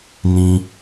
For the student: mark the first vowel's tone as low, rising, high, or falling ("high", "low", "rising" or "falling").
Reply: low